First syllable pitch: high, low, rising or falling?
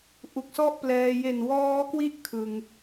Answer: low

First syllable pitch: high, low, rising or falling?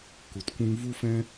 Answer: low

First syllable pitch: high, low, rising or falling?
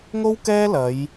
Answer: high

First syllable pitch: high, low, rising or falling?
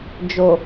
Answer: low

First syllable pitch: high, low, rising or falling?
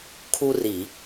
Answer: high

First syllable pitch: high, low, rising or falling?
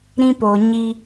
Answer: high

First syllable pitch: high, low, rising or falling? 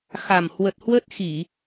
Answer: low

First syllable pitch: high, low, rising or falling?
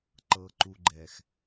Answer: low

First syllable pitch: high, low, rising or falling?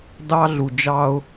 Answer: high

